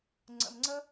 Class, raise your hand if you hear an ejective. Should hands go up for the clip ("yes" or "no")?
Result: no